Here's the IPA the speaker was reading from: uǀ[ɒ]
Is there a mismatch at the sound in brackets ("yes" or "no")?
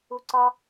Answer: no